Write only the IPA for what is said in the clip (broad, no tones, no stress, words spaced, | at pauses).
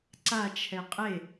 ǀat͡ʃʰɛ qʼe